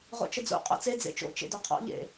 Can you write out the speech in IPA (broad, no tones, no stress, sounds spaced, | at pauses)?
ʁ o̰ t͡ʃ ə d͡z o̰ qʼ ɔ̰ t͡s e d͡z ḛ t͡ʃ o̰ t͡ʃ ḛ d ɔ qʰ ɔ̰ ʎ ḛ